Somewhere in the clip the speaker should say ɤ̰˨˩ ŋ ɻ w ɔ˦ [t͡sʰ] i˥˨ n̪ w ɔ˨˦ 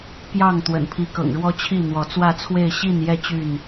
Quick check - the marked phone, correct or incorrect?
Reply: incorrect